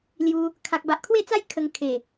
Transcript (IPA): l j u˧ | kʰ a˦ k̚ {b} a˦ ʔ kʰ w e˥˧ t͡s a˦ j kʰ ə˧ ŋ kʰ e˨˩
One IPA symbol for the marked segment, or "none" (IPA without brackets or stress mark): b